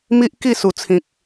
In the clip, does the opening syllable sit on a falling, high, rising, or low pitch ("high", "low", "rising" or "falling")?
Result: high